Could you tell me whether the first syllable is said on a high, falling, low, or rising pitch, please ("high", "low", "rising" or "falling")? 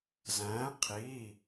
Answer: rising